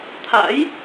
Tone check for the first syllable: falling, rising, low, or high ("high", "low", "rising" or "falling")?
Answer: rising